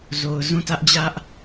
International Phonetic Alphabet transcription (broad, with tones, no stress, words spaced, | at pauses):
zo˨ʊ̯zũ˦˨tä˦ʔ d͡ʑä˦ʔ